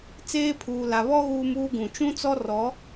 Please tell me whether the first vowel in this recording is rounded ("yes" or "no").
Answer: no